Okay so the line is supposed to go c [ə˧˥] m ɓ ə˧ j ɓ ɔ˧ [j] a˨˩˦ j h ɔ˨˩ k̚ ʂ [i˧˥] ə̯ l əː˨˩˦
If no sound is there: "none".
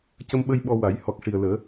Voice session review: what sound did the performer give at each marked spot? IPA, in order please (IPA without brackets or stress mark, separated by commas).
ə˧, w, i˨˩